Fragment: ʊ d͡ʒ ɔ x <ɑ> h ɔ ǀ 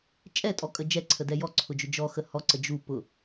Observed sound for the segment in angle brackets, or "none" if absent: ə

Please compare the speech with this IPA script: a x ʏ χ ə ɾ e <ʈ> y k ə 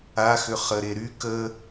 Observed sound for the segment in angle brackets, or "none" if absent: ɾ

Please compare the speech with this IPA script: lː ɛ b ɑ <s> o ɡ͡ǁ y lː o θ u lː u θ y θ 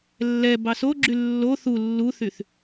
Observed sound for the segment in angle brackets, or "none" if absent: s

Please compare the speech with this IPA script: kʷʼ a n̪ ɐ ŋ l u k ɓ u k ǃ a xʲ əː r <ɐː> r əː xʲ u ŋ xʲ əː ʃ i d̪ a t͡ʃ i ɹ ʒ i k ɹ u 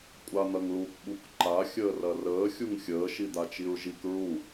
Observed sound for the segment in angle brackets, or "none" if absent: ɐ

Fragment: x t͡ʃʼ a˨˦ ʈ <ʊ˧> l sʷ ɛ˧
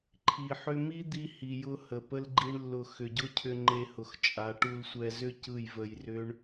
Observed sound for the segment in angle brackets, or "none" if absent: u˧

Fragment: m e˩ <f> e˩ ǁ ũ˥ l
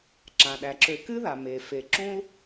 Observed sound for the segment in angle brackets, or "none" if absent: f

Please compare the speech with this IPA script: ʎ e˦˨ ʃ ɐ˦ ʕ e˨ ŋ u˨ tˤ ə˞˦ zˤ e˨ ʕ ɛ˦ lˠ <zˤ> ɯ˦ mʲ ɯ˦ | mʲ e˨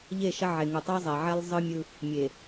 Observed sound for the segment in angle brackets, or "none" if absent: zˤ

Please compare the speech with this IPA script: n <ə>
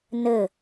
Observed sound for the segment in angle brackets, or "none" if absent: ə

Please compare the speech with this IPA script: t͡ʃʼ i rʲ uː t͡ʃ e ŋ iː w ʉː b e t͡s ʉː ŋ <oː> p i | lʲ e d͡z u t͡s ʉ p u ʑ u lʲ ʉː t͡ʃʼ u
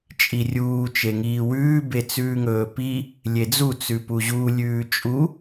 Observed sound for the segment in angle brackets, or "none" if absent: ɵː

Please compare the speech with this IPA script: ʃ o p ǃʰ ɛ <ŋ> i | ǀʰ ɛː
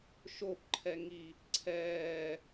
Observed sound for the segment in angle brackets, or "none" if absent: ŋ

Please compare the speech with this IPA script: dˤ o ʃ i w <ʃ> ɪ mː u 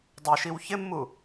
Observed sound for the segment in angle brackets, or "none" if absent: ç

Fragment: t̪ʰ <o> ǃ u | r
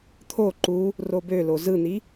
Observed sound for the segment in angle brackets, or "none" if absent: o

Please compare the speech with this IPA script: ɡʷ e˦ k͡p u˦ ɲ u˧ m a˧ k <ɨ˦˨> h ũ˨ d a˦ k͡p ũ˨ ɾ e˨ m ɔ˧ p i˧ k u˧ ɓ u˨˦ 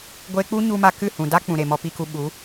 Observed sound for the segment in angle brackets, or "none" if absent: ɨ˦˨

